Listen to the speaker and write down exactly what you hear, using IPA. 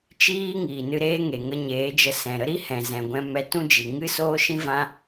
t͡ʃ iː˦ ŋ iː˨ n ɨ˧ ɾ eː˦ ŋ e˨ ŋ ə˧ ɲ eː˨˦ d͡ʒ ə˧ s ɛ̃˨ ɾ ə˦ ɾ i˦ h ɛ̃˨ z ɛ̃˨ ɡʷ ɛ̃˧ m ɛ˧ t ũ˦ d͡ʒ i˨ ŋ ɨ˦ s oː˦ ʃ ĩ˦ v ã˦

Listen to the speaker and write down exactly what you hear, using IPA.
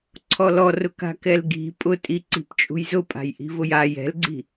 ǀʰ ɔ l ɔ r ʊ k a̤ k ɛ l ɡ i̤ pʼ ʊ tʼ i ǀ i̤ p t͡ʃʼ ṳ j z ʊ pʼ a̤ j ʔ i̤ v ʊ j a j ɛ̤ l ɡ͡ǀ i̤

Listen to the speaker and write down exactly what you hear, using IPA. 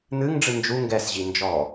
n̪ ɨ ŋ ɖ͡ʐ ɨ n d͡ʒ u ŋ ɡ ɛ s ʑ i n d͡ʒ ɔ

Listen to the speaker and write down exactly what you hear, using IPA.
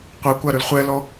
qʷ ɛ kʷ a ɾ ʉ l χʷ ɛ l ɔ

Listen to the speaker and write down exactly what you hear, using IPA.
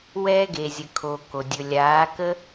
w ɛː˦ ɡ e˨ zʲ ə˨ kʰ o˨ k o˨ dʲ ɵ˨ lʲ aː˨˦ k ə˦

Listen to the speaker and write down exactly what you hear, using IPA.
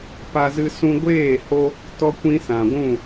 p a˧ z ɨ˧ s ũ˧ ɡʷ eː˦˨ h o˧ | t ɔ˦ kʷ ĩ˦ s ã˨ ɡʷ ũ˦˨

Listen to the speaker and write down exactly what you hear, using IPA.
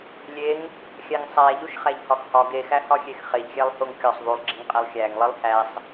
lʲ e ŋ | xʲ æ ŋ sˤ æ ʎ u ʃ χ æ ʎ h ɒ x h ɒ ɡ e x æ h ɒ xʲ e x χ e ʎ xʲ æ lˠ h o ŋ kʲ ɒ sˤ ðˤ u lˠ ɡ͡ǁ i ŋ qʼ æ lˠ xʲ æ ŋ lˠ i lˠ h æ sˤ

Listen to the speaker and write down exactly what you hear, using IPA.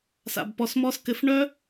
s a̰˨ b p ɔ˨ s m ɔ˧ s k ɘ˨ f ɳ œ˦

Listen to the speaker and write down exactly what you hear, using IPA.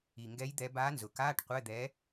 i˨˩ ŋ ɡ ɛ˧˥ j d̪ ɛ˧˥ b aː˧˥ n z ʊ˩˧ k aː˧˥˧ ʈ qʷ ɛ˧˥˧ d̪ ɛː˧˥

